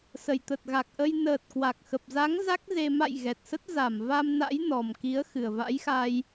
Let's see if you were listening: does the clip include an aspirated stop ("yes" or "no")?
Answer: no